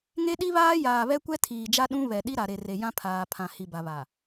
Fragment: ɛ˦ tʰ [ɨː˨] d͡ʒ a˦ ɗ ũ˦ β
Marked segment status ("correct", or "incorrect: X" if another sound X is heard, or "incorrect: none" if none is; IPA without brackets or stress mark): incorrect: iː˨